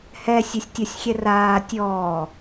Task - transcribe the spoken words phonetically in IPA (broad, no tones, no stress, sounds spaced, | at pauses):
h ɛ sʲ ɛ sʲ tʲ ɔ sʲ xʲ ɛ r aː tʲ ɔː